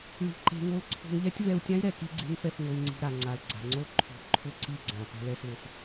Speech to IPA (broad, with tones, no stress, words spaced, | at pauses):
ɭi̤˧ǃe̤˧ŋo˦l ǀʰo̤˧ŋʎɛ˦tʲ vɛ˧u̯tʲã˦i̯ ɾɛ˨ki˦ɡ͡ǀe̤˦ŋfɛ˧f ŋo˧i̯ŋ͡ǀi̤˧ɾa˨ŋ͡ǀa˨l ɡ͡ǀa̤˨ŋ͡ǀo˦ǃʰo̤˨˦ ǃʰʊ˦˨ǀi˦˨ɡ͡ǀã˨ pɛ̤˦lɛ˦slʊ˧s